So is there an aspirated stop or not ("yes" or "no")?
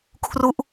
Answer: yes